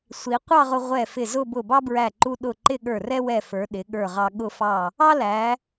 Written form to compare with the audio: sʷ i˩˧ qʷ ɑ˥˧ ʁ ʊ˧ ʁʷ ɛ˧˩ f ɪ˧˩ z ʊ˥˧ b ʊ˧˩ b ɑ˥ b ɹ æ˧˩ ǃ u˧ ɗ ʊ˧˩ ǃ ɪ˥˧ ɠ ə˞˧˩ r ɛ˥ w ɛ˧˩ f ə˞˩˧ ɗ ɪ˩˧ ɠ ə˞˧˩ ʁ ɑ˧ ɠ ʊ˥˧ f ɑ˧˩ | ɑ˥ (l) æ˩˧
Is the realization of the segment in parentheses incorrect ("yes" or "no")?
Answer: no